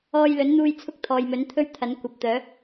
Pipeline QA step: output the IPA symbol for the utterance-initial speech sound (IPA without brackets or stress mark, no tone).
ɔː